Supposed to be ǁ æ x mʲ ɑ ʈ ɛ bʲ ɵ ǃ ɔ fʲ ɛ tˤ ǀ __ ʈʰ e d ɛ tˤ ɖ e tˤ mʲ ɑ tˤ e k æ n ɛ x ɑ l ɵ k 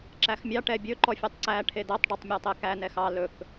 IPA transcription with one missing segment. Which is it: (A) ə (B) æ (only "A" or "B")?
B